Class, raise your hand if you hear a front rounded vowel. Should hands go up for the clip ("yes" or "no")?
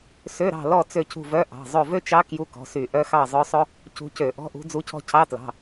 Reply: yes